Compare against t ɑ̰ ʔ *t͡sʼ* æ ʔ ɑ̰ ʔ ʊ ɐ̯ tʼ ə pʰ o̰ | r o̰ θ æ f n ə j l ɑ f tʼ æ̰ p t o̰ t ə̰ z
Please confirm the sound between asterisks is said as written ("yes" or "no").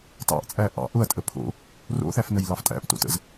yes